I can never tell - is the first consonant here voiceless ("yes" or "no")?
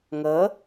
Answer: no